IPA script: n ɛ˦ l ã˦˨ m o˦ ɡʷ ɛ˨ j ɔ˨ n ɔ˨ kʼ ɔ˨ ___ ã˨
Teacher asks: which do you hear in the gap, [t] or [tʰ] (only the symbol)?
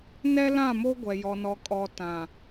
t